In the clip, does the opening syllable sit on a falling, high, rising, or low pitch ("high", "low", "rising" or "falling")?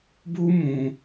high